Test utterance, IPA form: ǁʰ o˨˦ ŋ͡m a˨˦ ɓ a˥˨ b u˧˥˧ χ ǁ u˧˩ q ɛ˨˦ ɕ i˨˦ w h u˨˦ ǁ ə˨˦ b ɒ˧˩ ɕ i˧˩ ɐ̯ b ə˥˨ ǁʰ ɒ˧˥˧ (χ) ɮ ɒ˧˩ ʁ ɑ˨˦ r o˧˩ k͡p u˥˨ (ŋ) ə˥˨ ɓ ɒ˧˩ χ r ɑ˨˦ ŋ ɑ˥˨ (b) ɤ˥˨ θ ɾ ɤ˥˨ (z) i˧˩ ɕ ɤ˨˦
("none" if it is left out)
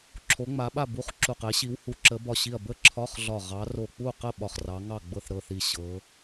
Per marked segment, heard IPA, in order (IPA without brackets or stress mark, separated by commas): χ, q, ɡ͡b, θ